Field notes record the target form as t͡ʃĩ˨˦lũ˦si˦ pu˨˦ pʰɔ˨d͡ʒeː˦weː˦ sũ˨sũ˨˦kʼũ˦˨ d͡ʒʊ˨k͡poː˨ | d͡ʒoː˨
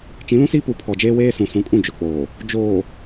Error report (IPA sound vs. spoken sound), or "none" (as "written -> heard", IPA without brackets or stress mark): none